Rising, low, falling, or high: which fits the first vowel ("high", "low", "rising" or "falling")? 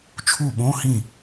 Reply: falling